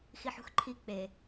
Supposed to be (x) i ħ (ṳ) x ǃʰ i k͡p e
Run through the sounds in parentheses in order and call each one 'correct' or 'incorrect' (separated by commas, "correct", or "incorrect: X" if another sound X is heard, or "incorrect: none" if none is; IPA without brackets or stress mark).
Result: correct, correct